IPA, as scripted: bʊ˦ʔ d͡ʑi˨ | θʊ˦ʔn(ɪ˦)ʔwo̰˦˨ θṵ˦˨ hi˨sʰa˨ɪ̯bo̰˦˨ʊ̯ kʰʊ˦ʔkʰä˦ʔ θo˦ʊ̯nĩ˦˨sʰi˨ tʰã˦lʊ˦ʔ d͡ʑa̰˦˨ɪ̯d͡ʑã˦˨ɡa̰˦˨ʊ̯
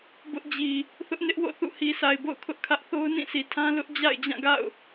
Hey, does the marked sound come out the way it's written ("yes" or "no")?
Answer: yes